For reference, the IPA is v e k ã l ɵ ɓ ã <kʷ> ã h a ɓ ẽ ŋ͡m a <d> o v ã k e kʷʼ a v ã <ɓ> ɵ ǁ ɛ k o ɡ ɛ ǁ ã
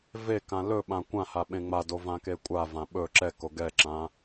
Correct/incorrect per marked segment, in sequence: correct, correct, correct

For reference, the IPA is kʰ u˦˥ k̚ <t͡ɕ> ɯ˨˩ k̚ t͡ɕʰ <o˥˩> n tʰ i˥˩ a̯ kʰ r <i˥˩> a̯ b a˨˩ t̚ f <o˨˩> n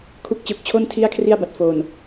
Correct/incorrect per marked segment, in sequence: correct, correct, correct, correct

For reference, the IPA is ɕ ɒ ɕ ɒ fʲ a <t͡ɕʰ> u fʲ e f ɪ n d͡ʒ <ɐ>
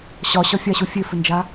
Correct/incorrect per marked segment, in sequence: incorrect: ɕ, incorrect: a

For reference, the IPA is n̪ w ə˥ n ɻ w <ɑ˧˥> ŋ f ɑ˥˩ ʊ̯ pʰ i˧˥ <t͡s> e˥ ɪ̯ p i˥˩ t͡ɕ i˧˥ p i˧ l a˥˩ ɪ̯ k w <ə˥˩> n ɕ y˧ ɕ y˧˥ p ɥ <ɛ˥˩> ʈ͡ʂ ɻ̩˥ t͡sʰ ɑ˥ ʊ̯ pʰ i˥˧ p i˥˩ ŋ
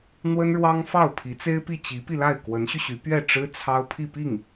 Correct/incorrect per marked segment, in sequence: incorrect: ɑ˥, correct, incorrect: ə˧˥, correct

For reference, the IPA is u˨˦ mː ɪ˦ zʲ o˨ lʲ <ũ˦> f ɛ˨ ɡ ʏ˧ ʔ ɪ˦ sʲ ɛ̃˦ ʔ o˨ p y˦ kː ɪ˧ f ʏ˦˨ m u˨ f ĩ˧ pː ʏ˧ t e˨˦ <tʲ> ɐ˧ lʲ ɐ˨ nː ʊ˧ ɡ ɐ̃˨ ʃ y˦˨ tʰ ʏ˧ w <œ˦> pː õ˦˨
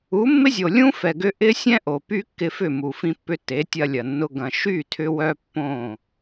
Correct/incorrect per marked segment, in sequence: correct, correct, correct

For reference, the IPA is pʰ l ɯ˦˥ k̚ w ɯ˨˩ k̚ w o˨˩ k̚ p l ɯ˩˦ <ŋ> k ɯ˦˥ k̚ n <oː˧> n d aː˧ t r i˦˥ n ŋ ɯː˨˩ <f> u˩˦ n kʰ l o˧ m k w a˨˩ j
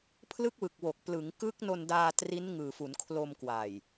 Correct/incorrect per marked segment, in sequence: correct, incorrect: o˧, correct

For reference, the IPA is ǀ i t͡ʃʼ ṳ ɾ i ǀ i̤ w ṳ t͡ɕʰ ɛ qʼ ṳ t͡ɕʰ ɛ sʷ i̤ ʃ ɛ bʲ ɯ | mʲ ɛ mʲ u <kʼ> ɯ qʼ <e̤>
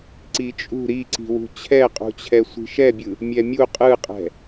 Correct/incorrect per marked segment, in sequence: incorrect: qʼ, incorrect: ɛ̤

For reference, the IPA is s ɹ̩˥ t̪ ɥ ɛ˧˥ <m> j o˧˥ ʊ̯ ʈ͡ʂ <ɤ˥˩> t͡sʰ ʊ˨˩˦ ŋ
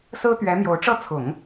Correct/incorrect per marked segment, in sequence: correct, correct

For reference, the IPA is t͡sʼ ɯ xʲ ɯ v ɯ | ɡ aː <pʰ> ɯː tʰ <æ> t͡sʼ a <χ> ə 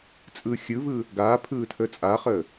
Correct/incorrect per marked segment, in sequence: correct, incorrect: ə, correct

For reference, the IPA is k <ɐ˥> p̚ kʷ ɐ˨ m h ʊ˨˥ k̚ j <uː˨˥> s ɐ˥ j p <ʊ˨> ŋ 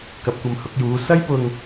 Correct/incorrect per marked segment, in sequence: incorrect: ɐ˨˥, correct, correct

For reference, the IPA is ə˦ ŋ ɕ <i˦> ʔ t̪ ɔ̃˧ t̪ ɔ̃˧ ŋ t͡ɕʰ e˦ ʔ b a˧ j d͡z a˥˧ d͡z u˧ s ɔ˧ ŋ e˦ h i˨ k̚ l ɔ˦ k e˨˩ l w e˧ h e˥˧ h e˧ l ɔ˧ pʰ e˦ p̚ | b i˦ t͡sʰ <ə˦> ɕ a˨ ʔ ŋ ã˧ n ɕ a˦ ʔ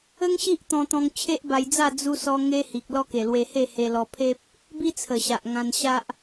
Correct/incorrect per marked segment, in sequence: correct, incorrect: ə˨˩

